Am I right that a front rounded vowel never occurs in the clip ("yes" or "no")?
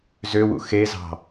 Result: no